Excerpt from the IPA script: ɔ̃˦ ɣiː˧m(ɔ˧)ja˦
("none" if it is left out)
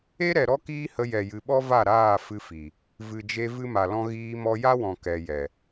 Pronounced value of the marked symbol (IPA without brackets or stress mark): ɔ˧